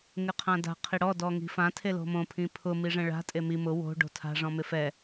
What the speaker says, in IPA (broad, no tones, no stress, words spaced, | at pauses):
ŋɪqʰãda̤ qʰiɽɔ dɔŋi̤fã tʰelo̤mõ pʰĩpʰʊ miʐɛ̃ɭa̤ tʼemi mʊ wo̤ ɖo̤tʰa̤ ʐɔ̃mɪfɛ